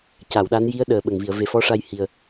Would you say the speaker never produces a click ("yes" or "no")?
yes